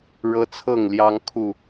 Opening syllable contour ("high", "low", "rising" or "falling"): high